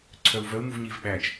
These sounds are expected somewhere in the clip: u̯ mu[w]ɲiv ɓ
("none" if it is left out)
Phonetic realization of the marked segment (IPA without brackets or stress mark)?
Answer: v